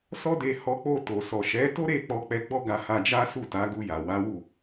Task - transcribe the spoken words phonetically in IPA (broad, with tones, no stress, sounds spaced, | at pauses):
s ɔ˦ d e˧ h ɔ˧ k͡p o˧ t o˨ s ɔ˨ ʃ ɛ˨˦ t o˦ ɾ e˦˨ k͡p ɔ˧ k͡p ɛ˧ ɡ͡b ɔ˦ ɡ a˧ h a˧ d͡ʒ a˦ s u˦˨ t a˨˦ ɡ u˧ j a˨ w a˨˦ w u˦˨